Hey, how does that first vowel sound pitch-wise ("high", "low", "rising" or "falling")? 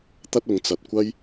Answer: high